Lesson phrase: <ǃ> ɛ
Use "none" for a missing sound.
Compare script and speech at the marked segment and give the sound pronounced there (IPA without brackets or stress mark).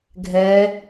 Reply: ɡʱ